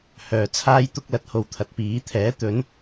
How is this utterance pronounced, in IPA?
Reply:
h œː˨ t͡sʰ aː˥ j t̪ ʊ˥ k̚ l ɐ˨˥ t̚ h o˨ w t̪ʰ ɐ˨ t̚ p iː˨˥ t̪ʰ ɛː˨˥ t̪ ɵ˨˥ n

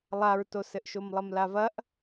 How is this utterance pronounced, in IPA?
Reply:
lˠ a ɹ t o s ɘ ʔ ʃ o m lˠ ɐ m l a v ɐ ʔ

